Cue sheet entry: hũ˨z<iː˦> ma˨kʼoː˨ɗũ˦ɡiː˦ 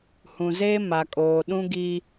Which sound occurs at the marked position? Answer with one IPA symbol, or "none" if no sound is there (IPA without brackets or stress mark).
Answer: eː˦